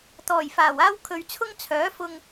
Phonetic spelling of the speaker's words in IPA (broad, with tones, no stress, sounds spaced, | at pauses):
t̪ ɔː˨˩ j f aː˨˩ w aː˥ w kʰ ɵ˨ ɥ t͡sʰ ʊ˥ ŋ t͡sʰ œː˨˥ f ʊ˧ ŋ